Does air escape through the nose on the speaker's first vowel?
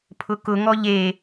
no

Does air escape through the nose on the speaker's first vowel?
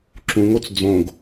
yes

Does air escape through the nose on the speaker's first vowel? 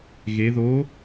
no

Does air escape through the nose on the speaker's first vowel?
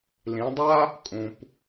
yes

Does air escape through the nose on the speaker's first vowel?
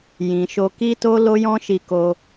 yes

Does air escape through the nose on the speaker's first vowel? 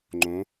yes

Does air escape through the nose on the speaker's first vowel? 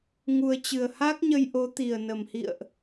no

